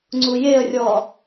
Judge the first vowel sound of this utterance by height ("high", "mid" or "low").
high